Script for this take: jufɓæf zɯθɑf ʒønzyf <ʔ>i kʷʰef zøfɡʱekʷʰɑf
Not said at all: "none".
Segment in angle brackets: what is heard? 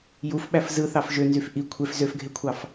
ʔ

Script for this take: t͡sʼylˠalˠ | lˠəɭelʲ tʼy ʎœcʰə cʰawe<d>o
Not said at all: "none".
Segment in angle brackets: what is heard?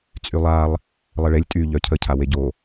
ɟ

